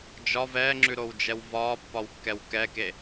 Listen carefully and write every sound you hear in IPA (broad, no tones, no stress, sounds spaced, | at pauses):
d͡ʒ ɒ v ɛː ŋ͡ǁ ʉ ɾ o w d͡ʒ ɛ w v ɒː pː ɒ w kː ɛ w k ɛ k e